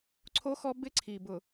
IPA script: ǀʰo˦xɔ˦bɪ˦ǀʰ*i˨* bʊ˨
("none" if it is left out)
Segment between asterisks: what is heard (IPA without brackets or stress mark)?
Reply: i˨